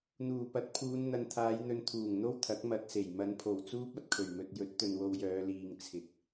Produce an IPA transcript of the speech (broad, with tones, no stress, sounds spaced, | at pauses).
n̪ uː˨˩ p ɐ˨˥ t̚ pʰ uː˨˧ n n̪ ɐ˨ n t̪ʰ aː˨˧ j n̪ ɵ˨˧ n t̪ʰ uː˨˩ ŋ n̪ o˥ w t̪ʰ ɐ˨˥ k̚ m ɐ˧ t̚ s e˨˩ j m ɐ˨˧ n pʰ o˨˩ w t͡s uː˥ p̚ ɐ˨ t̚ kʰ ɵ˨˩ ɥ m ɵ˨ t̚ j ɵ˨˥ t̚ t̪ ɵ˨ n w o˧ w j œː˨˧ l iː˨ ŋ t͡sʰ ɪ˨˥ k̚